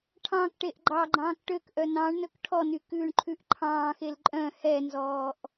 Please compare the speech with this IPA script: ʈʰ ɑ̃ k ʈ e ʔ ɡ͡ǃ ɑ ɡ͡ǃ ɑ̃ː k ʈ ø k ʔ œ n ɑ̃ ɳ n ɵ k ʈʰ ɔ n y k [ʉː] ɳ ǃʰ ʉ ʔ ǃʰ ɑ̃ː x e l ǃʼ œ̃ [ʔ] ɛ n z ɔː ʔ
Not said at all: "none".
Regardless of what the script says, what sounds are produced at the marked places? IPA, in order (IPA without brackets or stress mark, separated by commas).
ʉː, h